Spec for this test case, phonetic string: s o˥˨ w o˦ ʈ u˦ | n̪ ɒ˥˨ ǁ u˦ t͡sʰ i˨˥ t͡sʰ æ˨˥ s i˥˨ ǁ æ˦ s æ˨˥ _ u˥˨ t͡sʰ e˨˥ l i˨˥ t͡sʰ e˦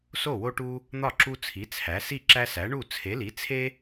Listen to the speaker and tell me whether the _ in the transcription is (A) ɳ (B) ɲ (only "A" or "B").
A